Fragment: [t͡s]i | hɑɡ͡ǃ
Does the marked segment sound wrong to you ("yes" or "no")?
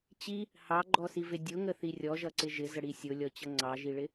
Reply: yes